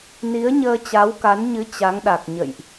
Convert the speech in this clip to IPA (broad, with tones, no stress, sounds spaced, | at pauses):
n i˨˦ ə̯ ɲ əː˧ t͡ɕ a˨˦ w k a˨˦ n ɲ ɨ˨˦ t͡ɕ a˨˦ ŋ ɗ a˨˩ k̚ ɲ ə̰˧˨ j ʔ